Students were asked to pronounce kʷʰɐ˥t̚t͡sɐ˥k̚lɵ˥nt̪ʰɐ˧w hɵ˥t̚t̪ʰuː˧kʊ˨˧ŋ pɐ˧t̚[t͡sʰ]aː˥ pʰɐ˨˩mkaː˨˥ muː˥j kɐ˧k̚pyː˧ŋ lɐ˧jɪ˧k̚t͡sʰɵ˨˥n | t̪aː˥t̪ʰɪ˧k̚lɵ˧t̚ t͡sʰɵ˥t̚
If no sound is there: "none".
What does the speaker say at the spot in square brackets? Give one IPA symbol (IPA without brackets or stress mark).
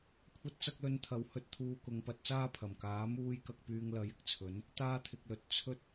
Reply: t͡s